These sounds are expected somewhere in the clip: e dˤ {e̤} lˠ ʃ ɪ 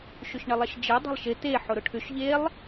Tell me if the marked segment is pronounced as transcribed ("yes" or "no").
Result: yes